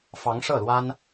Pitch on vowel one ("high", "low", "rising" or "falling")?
rising